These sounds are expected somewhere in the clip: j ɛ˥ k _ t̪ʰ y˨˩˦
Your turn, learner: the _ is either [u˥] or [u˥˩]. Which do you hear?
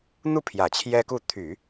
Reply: u˥˩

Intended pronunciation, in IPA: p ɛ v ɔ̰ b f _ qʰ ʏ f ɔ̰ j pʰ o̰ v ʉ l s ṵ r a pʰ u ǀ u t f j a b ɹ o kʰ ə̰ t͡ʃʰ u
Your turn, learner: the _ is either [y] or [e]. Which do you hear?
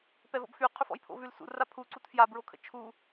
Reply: y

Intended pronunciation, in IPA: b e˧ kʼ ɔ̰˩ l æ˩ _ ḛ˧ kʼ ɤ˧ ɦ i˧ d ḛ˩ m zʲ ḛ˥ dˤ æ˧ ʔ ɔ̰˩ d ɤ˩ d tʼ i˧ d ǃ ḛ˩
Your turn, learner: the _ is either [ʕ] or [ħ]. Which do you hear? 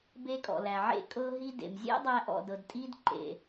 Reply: ʕ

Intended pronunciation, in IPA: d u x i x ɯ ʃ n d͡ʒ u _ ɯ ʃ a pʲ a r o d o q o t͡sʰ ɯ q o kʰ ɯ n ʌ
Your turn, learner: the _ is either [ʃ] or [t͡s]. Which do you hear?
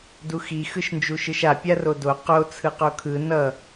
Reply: ʃ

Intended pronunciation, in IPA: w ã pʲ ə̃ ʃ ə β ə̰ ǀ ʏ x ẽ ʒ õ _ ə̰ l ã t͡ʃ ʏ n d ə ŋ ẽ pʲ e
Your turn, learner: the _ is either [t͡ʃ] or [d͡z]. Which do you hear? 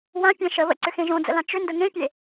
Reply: d͡z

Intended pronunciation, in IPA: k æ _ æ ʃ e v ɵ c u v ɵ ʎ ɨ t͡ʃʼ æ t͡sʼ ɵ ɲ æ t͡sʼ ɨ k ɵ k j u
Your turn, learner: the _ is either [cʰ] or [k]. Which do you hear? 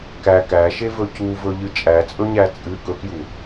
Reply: k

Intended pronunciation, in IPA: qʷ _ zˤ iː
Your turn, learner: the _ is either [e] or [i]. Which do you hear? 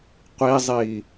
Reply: i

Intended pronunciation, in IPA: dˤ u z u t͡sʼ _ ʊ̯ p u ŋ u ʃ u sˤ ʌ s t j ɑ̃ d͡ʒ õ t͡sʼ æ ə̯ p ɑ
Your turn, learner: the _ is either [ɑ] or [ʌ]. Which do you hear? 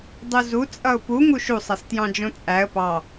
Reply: ʌ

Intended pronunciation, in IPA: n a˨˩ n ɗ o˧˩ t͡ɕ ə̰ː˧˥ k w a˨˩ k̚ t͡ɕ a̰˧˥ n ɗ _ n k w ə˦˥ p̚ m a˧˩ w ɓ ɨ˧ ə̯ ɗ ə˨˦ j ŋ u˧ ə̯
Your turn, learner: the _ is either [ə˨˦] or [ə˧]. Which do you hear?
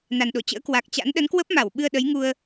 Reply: ə˨˦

